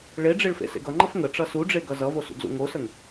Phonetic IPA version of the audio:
ɭ e ɖ͡ʐ e ɭ f ḛ s ḛ ɡ ʌ ŋ͡ǃ ʌ f ŋ ə ʈ͡ʂ ʌ s u ɖ͡ʐ e ɡ ʌ z ʌ v o s ṵ ɡ z ṵ ŋ o s ə ŋ

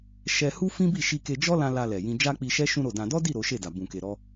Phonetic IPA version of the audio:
ʃ ɛ˦ h u˦ f ĩ˦ b i˦˨ ʃ i˧ k e˧ d͡ʒ ɔ˦ l ã˧ l a˧ l ɛ˨ j ĩ˧ d͡ʒ a˦ k͡p i˧ ʃ ɛ˦ ʃ ũ˦ ɾ o˦˨ d ã˧ d ɔ˦ d i˦˨ ɾ o˨˦ ʃ e˦˨ d a˨ b ũ˨ k e˨ ɾ ɔ˧

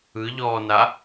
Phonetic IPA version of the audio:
ɯ ʎ ɔː n a

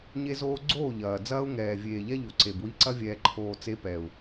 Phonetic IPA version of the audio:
ɲ e˦ z oː˦ ɡ͡ǀ oː˦˨ ʎ ɐː˨ d͡z ɐː˦ u̯ ŋ ɛː˨ vʲ eː˨ ʎ ɛ˦ ʎ o˨ ǀ e˨ b w i˦ ǀ ɐ˦ vʲ ɛː˨ ǃʰ oː˨ t͡s e˦ p ɛ˨ u̯

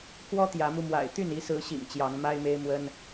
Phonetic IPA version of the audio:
k w ɔ˦ t̪ j ä˨˦ m u˧ m w a̰˨˩ ɪ̯ t̪ y˥˨ n i˨˦ s ɹ̩˨˦ ɕ ḭ˨˩ ŋ t͡ɕ j ɑ˨˦ ŋ m a˦ ɪ̯ m e˦ ɪ̯ m w ə˦ n

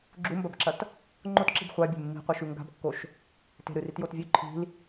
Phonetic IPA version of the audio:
ɡ͡ǁ u m b ɐ b ǁ ɐ t | ŋ͡ǃ o t ǁ i̤ b χʷ a bʲ e̤ mː i̤ qʷ i ʃ ʉ ŋ ɡ a̤ b kː o ʃ | t e̤ ɾ ɨ r i t j o t vʲ ʉ ǃʰ i̤ l

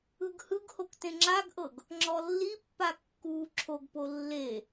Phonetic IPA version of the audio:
ɯ ɡ h ɯ ɡ h o k t ẽ ŋ͡ǁ a ɡ ʔ ɤ ɡ | ŋ͡ǁ ɔ lː i pː a kː uː ǁʰ o ɡ p o lː e

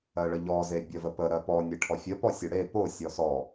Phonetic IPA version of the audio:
ɜ ɭ ə ʎ ɔ z e bʲ ɜ v ə p ə ɾ ɜ p ɔ nʲ e ʈʰ ɔ fʲ ə p ɔ sʲ o ɽ e p o sʲ ɔ s ɔ

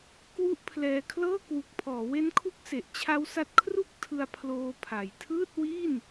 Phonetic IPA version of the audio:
k w u˦˥ ʔ pʰ l ɛː˧ kʰ l ɤː˥˩ k w u˨˩ k̚ pʰ ɔː˩˦ w e˦˥ n kʰ u˦˥ k̚ s e˨˩ ʔ t͡ɕʰ a˦˥ w s a˦˥ t̚ kʰ r u˥˩ k̚ tʰ ɯ˧ a̯ pʰ l oː˧ pʰ a˨˩ j tʰ ɯː˥˩ t̚ w i˥˩ n

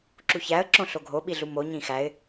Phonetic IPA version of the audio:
ǁ u ç æ ə̯ ǁ õ ɬ o ɡʱ o ɓ i ɮ u m o ɲ ĩ x æ ɪ̯

